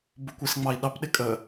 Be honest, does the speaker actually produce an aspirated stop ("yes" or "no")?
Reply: no